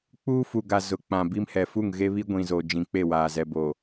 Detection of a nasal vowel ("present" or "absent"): present